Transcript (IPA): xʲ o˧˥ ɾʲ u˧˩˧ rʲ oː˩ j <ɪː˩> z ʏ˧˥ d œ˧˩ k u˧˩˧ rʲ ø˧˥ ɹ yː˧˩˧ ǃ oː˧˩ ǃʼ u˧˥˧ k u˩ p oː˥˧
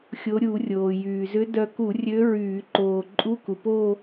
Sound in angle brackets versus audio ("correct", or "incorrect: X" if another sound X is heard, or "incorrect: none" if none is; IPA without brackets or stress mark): incorrect: yː˩